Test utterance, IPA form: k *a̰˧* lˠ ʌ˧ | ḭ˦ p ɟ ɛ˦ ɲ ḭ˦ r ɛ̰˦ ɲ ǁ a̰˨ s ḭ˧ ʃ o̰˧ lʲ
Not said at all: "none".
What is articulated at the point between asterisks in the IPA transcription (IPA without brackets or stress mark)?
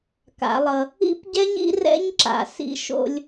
a̰˨˦